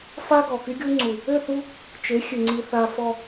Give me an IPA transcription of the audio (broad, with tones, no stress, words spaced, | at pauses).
fa˦ɡɔ˨ ky˦ɡʲu˦ŋ͡ǀu˨ | ø˦˨θu˦ | t͡ʃe˨˦xʲø˨ŋ͡ǀi˨ θa˨fɔ˨